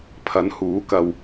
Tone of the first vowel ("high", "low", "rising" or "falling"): rising